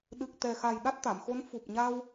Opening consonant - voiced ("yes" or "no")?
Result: yes